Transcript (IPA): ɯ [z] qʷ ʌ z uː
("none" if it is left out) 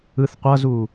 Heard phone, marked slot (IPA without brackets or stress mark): θ